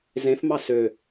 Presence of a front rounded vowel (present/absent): present